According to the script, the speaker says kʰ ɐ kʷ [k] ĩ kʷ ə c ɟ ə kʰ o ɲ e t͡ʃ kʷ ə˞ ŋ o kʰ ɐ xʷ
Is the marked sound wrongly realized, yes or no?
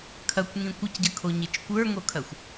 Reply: yes